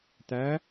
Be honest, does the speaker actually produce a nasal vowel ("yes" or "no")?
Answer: no